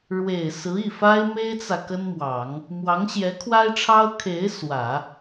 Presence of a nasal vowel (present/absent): absent